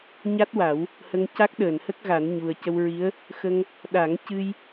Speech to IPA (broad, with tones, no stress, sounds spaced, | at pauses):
ɲ a˦˥ t̚ w a˨˩˦ w | h ə˧ ŋ c a˦˥ k̚ ɗ əː˨˩˨ n h ə˦˥ k̚ ɣ a˨˩˦ n ɲ u˨˩ ə̯ c ə˧ w ɹ i˧˥ ə̯ | x ə˧ ŋ | ɗ a˨˩˦ ŋ c ɨ˧ j